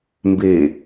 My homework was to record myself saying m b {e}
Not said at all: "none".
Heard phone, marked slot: e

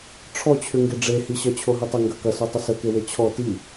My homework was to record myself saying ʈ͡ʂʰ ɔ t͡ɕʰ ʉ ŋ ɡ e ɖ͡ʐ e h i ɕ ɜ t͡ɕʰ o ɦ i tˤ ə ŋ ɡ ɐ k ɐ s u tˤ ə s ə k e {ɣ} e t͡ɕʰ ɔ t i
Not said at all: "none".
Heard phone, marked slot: w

